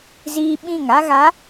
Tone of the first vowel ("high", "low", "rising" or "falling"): high